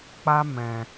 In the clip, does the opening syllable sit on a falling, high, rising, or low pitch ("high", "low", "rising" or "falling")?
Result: high